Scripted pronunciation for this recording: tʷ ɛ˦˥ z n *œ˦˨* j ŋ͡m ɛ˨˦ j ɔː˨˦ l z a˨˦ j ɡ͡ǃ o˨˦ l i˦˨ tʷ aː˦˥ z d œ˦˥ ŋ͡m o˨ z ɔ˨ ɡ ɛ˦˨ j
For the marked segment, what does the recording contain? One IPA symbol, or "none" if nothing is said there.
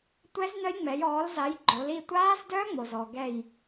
œ˦˥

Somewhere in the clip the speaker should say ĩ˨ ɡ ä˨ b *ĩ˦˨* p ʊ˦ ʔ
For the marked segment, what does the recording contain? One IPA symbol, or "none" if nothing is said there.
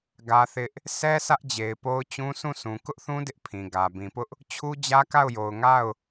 ĩ˨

